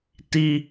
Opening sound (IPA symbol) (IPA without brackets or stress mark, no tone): t